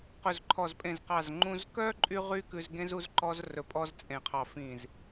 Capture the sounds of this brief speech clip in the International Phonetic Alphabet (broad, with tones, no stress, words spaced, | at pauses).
qɵ˧˩zǃʰɔ˧˩zpʼẽ˧˩zqɑ˧˩z ŋ͡ǃũ˧zkœ˥ ǃʼy˥ʁy˥kʉ˧zɡẽ˥z u˥zǃɔ˥z rɵ˧pʼɔ˥zt͡sʼẽ˧˩qʰɑ˧˩ fĩ˧˩z